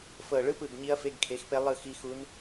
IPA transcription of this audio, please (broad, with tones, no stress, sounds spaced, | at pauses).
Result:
f ɤ˨˩ ɭ ɯ˧˥˧ p ɯ˨˩ ɡ ɲ i˧˥ ɐ̯ f e˧˥˧ ɡ kʰ e˩˥ x p e˧˥ lˠ ɯ˦˨ x i˧˥ x u˧˥ n